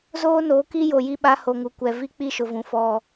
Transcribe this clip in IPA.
z oː˦ n o˨˦ k i˦ j o˨ j i˦ ɓ a˦ h o˨ ŋ u˨ kʷ ɛ˨ v i˦ k͡p i˦ ʃ ʊ˨ v ũ˨ f ɔ˦

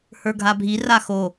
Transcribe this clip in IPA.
h ə˞ ɡʱ a bʱ i r a x o

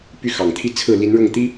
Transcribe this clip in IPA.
p y˥˩ x ɑ˨˩ ŋ t̪ʰ i˥˧ t͡sʰ ɹ̩˥˩ l i˧˥ n ɻ ʊ˥˩ ŋ t̪ i˥

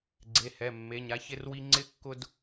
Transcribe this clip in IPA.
ɡ͡ǀ e˩˧˩ h ɛ˩˧˩ mː e˩˧˩ ɲ a˦ ç ɪ˦ r w i˦ ŋ͡ǀ ɪ˦ kː ʊ˦ d

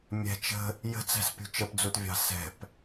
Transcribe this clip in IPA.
mʲ ɛ̤ t͡ʃ ə̤ | j ə̤ t͡s æ̤ s pʲ ṳ t͡ʃ ə p d͡z u t vʲ ɑ̤ s ɛ̤ p

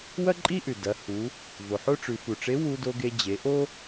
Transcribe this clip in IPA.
w ɐ˥ ǃʼ i˥ ʔ ʉ˩ d ɐ˩˧ h u˩˧ | v o˩ ħ o˥ ʈ͡ʂ ʉ˩˧ f u˩ ʈ͡ʂ e˧˥ w u˧ d o˧ ɡ e˧ d͡ʑ e˩˧ ʔ o˥

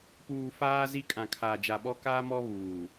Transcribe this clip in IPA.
p uː˨ f aː˦ z i˦ kʼ ã˨ kʰ a˨ d͡ʒ a˨ ɓ ɔ˦ k aː˦ m ɔ˦ β uː˨

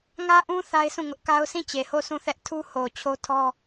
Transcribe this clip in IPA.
ŋ ä˦ ʔ ũ˦ θ a˦ ɪ̯ sʰ ũ˦˨ ŋ ʊ˦ ʔ k a˦ ʊ̯ s ĩ˦˨ t͡ɕ e˨ h o˦˨ s ũ˦˨ θ ɛ˦ ʔ tʰ u˦ h o˨ t͡ɕʰ o˦ tʰ ɔ˦

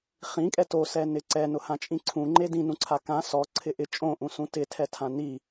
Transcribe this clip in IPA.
χ ĩ kʼ ɛ t o s ɛ n ɪ ǀ ɛ n ʊ h ã t͡ʃʼ ĩ ǀʰ ũ ŋ͡ǃ e d ĩ n ũ ǀʰ a k ã s ɔ ǀʰ ɪ ʔ ɪ t͡ʃʼ õ ʔ ũ s ũ t ɪ tʰ ɛ tʰ ã n i

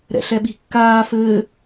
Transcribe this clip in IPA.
ɾ ɛ̰ ɬ ɛ ɓ i̤ kː aː f ɘː

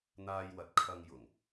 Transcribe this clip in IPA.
n̪ aː˧ j w ɐ˨˥ t̚ kʰ ɐ˧ ŋ j ʊ˨˩ ŋ

